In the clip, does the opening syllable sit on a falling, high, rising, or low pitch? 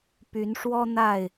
rising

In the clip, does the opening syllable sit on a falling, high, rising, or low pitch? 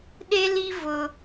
high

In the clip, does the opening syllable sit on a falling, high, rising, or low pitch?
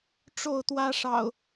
falling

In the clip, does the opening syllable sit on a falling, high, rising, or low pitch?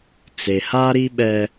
low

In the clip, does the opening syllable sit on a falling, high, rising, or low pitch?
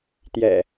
low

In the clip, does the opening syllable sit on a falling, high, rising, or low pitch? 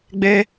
high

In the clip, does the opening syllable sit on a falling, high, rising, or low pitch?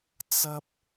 high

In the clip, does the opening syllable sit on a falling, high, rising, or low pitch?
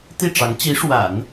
falling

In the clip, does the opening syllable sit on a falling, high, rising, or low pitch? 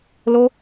high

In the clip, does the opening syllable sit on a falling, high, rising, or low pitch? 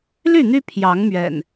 falling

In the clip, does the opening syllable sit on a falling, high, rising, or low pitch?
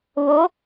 rising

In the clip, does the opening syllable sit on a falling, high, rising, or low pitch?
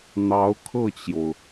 rising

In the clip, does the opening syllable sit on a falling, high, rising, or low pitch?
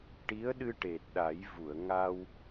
rising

